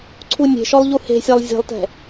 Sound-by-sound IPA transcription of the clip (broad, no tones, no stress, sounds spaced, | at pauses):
ǀʰ u nʲ e̤ ʃ ɔ lˠ ʎ u h e̤ sʲ a lˠ zʲ e̤ lˠ t ɛ̤